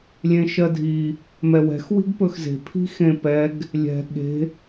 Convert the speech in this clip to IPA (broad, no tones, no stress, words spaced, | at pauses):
lʲẽʃɜdʱi | mɛwɛ̤x wi̤ɡpɵxze̤ pʰi̤xẽpɛɡ | lʲɛ̤ ɠe̤